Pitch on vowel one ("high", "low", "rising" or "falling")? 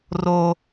high